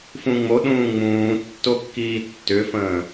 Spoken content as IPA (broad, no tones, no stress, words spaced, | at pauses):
fũŋ͡mo ɗũːŋ͡mũː tːokːiːtːʏfə̃ː